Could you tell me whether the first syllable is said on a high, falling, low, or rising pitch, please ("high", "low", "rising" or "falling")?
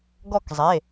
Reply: falling